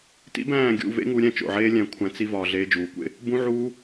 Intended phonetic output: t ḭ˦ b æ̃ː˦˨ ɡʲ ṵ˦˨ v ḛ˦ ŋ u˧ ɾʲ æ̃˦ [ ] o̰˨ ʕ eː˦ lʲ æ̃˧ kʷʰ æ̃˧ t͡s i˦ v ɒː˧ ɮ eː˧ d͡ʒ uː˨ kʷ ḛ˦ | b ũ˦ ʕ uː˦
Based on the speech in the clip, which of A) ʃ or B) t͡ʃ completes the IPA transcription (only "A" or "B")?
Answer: B